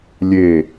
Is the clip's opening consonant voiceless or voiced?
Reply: voiced